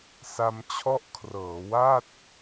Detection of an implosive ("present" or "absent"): absent